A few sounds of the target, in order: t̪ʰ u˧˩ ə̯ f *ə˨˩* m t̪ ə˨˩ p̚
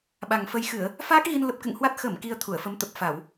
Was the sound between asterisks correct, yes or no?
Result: no